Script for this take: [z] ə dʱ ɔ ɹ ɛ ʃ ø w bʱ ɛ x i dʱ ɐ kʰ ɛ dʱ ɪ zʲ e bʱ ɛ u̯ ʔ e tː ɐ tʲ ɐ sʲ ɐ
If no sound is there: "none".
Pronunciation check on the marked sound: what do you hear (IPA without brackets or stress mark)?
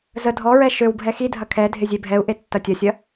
z